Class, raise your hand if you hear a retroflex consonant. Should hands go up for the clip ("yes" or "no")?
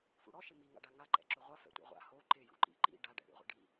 yes